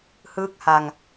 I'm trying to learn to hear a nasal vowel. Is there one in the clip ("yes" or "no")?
no